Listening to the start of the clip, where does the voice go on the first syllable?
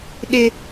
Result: high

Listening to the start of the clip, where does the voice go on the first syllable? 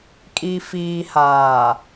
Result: low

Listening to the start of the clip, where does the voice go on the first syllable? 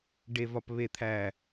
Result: low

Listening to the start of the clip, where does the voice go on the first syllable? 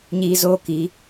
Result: high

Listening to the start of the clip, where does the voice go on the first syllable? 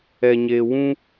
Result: low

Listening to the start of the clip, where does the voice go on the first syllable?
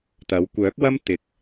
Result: rising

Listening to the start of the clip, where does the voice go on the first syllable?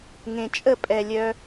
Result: low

